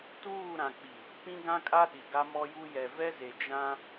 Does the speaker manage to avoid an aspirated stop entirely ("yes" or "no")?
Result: yes